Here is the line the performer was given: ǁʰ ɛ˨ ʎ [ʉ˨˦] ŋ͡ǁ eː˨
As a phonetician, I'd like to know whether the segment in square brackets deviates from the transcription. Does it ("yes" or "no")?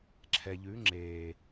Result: no